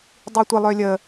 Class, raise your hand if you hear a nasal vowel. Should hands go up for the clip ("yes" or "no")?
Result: no